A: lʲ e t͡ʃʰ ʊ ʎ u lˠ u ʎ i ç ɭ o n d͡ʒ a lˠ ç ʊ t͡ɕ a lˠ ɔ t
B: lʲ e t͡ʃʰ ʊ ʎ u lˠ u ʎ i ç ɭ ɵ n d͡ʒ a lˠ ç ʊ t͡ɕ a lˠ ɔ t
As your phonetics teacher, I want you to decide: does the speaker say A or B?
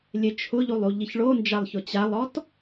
A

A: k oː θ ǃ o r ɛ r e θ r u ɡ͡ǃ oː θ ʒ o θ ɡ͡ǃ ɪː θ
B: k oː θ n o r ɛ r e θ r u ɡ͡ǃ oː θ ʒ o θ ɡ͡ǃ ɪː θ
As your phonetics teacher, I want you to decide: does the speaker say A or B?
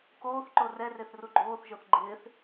A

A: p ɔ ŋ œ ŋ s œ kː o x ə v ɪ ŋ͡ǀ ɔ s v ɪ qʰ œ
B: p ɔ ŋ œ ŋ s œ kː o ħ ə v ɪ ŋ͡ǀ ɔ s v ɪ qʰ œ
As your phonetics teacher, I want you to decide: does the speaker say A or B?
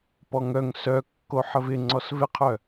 B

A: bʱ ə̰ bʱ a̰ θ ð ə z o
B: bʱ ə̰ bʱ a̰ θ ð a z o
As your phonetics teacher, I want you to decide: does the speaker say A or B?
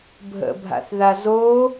B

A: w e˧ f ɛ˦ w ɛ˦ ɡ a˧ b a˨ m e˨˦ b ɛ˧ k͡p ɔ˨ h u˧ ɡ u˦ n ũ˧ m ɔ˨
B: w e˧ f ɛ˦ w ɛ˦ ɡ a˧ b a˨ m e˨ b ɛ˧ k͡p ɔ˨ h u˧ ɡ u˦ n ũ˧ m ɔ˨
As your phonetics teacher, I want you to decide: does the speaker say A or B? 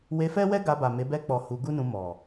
A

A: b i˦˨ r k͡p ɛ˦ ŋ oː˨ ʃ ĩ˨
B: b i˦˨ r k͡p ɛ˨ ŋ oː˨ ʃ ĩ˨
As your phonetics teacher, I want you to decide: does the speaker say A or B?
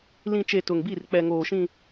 B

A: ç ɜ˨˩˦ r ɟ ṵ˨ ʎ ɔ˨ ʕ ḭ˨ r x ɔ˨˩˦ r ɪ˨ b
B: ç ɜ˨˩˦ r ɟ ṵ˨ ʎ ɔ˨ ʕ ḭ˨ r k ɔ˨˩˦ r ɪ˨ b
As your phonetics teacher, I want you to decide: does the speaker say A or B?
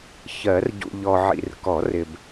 B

